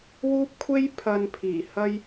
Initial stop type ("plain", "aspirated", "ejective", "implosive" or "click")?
plain